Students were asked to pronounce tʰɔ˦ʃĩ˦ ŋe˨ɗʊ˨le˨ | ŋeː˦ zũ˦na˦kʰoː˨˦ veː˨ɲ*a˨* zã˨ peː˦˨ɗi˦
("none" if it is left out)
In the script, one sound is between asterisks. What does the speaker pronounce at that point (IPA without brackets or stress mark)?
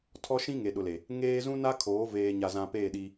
a˨